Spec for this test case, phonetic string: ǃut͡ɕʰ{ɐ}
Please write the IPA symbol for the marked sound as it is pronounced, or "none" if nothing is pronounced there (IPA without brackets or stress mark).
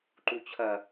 ɐ